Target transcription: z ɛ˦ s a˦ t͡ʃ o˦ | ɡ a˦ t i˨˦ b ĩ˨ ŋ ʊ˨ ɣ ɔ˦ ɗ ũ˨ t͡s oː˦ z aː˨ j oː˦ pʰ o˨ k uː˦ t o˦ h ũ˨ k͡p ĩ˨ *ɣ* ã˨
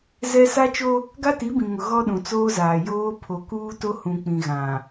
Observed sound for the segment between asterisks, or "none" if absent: ɣ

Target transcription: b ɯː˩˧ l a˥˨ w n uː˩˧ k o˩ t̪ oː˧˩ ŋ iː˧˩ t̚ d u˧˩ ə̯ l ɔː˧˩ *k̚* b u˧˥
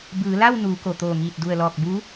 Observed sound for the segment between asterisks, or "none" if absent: k̚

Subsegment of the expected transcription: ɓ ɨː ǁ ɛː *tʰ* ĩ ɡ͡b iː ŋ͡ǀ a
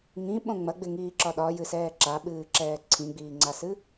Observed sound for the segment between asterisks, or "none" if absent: ǀʰ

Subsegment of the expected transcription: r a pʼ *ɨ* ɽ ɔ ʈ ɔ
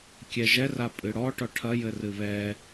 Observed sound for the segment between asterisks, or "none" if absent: ɨ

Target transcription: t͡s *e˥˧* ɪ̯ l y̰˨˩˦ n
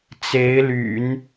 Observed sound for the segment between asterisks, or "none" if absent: e˧˥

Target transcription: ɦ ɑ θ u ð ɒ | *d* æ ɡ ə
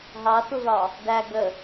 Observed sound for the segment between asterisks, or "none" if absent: d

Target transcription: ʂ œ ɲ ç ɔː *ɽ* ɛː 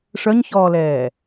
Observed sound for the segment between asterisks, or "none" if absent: l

